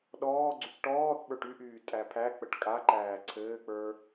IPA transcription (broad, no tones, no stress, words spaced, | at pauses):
ɗɔː ɡ͡ǀykʈɔːθɓə˞ʈ yʔyː tʼæpʰæk͡pəʈ kʼaǃæː ǀʰɘːk͡pə˞